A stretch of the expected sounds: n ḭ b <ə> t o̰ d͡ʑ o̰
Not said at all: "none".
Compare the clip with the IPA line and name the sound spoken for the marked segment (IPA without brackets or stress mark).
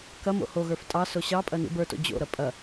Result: ə˞